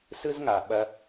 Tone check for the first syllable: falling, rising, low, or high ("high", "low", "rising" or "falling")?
high